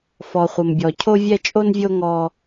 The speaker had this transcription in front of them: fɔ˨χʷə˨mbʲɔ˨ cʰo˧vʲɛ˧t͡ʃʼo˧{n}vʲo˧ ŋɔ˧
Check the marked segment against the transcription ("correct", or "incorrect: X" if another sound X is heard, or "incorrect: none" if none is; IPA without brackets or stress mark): correct